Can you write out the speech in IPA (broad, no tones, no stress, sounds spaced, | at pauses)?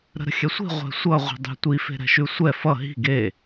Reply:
ɾ ə̤ ɾ ə̤ xʲ ɛ sʷ i̤ ʁʷ ɛ̤ sʷ ʌ ʁʷ i̤ dˤ ə̤ tʷ i f e̤ ɾ ɛ̤ ʃ ʉ sʷ ɛ f ʌ ɦ i̤ ɡ e